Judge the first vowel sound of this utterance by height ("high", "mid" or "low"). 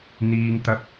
high